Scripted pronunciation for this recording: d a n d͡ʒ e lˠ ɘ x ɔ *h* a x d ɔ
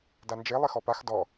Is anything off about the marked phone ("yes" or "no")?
yes